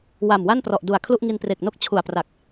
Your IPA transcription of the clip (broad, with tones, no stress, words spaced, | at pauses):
wa˨˩mwa˥˩nprɔ˨˩ʔ du˨˩a̯kʰlu˥˩ʔ ŋi˧npre˨˩k̚no˥˩k̚ t͡ɕʰu˨˩a̯pra˨˩k̚